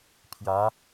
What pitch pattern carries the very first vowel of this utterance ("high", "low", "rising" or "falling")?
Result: rising